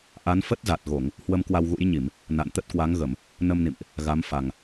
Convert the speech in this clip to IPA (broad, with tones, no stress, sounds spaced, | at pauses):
ʔ a˨˦ n f ə˦˥ t̚ z a˨˩ t̚ ɣ o˧˩˨ ŋ | h w ə˧ m k w a˧ w ɣ ṵ˧˥ j ɲ i˧˩˨ m | n a̰˧˨ n t̪ ə˦˥ t̚ k w a˨˦ ŋ ɣ ə˧˩˨ m | n ə˧ m n ḭ˧˨ m ʔ | ɣ a˨˦ m f a˨˩ ŋ